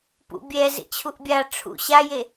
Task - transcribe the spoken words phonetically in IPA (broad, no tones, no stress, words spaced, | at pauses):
pṵbʲɛ zḛt͡ɕʰuʔbʲa ʈ͡ʂʰṵ ɕaje